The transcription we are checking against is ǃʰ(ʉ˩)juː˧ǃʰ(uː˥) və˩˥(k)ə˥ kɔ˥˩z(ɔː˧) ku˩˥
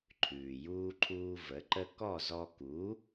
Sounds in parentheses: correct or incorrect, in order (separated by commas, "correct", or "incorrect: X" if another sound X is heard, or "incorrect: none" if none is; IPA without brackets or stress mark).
incorrect: ʉː˩, incorrect: uː˧, incorrect: ǃ, incorrect: ɔ˧